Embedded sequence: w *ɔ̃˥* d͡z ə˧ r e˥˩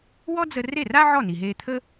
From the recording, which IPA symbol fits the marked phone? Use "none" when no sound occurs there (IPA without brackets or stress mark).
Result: ɔ˥